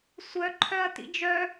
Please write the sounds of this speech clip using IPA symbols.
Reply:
sʷ œ ǃʰ œ ɐ̯ t ḭ d͡ʒ œ

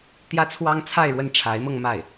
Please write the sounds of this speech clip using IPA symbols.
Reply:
t̪ j ä˥ t͡sʰ w ɑ˥ ŋ t͡sʰ a˥˧ ɪ̯ ɻ w ə˥˩ n ʈ͡ʂʰ a˧˥ ɪ̯ m ɤ˧ ŋ m a˥˩ ɪ̯

